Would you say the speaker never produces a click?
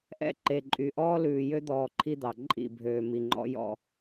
no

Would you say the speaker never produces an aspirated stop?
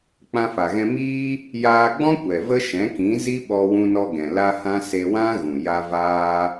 yes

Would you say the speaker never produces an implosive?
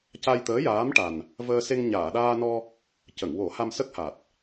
no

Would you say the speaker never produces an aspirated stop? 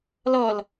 yes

